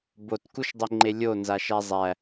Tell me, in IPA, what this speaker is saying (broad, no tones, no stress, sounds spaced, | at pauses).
b o t k u ʃ dˤ e ŋ͡ǃ e lʲ o n z a ʃ æ zˤ æ